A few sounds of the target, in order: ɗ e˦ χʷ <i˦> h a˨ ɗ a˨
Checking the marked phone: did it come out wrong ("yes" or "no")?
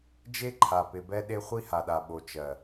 no